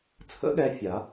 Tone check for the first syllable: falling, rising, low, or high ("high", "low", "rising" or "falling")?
rising